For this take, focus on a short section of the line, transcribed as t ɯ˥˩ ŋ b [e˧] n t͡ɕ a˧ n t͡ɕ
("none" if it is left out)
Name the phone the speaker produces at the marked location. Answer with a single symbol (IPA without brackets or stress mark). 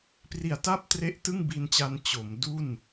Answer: i˧